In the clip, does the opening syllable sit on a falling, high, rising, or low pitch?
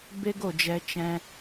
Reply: high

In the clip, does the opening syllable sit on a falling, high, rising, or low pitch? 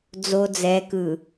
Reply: low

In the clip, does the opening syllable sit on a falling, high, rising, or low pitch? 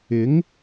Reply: rising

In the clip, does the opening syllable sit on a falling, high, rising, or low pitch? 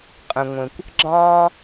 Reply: low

